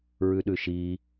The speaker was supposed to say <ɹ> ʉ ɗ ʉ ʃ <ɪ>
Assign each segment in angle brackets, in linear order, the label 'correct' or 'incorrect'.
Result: correct, incorrect

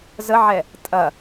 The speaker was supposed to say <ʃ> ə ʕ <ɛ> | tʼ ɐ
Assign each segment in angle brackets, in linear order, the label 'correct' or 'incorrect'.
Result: incorrect, correct

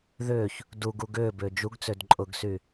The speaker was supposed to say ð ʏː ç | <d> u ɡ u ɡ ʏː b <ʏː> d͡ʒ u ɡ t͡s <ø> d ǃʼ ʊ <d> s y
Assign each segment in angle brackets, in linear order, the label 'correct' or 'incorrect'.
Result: correct, correct, correct, incorrect

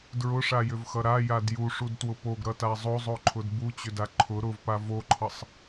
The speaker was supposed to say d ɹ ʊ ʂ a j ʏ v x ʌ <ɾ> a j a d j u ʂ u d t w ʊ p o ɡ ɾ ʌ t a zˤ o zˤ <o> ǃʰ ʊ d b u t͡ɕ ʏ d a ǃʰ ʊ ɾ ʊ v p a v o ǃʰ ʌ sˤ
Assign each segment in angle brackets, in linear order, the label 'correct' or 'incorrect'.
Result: correct, correct

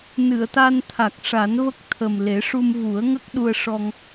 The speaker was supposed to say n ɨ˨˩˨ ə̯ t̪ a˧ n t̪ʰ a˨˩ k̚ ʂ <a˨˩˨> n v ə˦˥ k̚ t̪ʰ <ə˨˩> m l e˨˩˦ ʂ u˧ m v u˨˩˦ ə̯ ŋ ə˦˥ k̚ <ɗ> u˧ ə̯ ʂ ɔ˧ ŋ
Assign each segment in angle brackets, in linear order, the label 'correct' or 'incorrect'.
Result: incorrect, correct, correct

